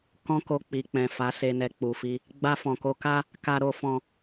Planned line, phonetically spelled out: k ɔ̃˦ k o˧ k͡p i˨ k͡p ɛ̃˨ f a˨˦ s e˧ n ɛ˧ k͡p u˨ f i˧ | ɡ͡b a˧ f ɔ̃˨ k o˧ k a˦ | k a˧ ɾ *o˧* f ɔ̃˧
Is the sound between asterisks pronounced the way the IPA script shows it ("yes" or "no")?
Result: yes